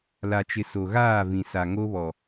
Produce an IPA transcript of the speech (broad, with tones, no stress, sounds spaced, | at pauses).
l a˨ t͡ʃ ɪ˨ s o˨ ɣ aː˦˨ v ĩ˨ s a˨ ŋ o˦ β ɔ˨